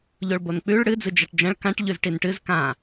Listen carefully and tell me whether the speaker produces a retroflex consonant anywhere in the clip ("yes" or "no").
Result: yes